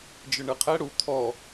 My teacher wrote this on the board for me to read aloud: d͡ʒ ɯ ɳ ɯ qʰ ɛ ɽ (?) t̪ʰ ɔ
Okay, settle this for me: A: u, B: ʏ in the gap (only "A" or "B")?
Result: A